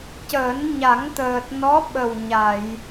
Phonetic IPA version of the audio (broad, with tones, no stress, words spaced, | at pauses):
cəː˨˩˦nɲa˨˩˦ŋt̪əː˨˩t̚nɔ˧˥ ɓə˨˩w ɲa˨˩˨j